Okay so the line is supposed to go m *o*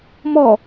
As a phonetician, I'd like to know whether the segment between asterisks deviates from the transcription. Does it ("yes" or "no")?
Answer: yes